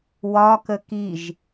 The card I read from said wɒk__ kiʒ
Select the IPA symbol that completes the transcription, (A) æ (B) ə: B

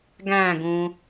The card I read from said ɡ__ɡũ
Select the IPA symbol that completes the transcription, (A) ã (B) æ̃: B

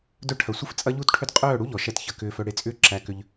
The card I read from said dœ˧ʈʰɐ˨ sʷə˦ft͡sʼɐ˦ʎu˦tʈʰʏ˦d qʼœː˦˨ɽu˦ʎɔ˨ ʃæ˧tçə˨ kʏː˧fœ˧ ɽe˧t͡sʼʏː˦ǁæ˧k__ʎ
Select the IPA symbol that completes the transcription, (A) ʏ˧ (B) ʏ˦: A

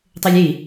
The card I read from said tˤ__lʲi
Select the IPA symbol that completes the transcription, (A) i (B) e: A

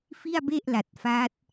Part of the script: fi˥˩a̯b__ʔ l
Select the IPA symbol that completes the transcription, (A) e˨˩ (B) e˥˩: B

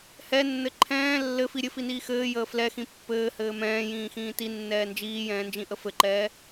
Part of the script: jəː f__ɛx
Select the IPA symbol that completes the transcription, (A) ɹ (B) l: B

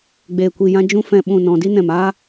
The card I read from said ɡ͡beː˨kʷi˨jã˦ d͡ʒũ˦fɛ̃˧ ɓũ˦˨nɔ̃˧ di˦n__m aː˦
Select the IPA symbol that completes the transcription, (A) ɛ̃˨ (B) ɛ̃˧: A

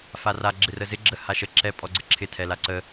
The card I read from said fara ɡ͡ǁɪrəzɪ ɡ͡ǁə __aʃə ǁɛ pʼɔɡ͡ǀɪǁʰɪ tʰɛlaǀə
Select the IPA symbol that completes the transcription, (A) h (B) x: A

